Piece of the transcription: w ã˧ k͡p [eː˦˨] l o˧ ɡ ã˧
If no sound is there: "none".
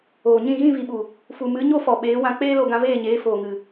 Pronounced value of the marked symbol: eː˦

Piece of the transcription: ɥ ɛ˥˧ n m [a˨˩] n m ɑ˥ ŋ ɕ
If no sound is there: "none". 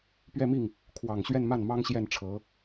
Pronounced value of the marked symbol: a˥˩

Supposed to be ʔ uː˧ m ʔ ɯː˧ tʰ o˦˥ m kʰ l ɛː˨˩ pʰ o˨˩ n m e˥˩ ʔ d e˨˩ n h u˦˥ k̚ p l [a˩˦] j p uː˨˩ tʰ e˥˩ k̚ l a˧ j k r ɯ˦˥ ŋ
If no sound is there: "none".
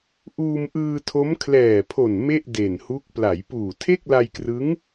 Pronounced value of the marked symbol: a˩˦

